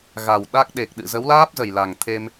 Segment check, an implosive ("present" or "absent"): present